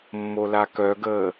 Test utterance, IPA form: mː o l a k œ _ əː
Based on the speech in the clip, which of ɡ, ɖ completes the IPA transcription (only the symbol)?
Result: ɡ